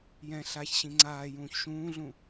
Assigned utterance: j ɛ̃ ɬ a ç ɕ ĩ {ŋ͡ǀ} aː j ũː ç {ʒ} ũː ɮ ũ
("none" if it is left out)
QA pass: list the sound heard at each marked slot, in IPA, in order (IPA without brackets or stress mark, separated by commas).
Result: ŋ͡ǀ, ʃ